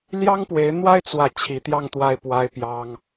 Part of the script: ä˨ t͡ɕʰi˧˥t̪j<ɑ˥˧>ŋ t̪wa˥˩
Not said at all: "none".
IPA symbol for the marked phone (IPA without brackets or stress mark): ɑ˥˧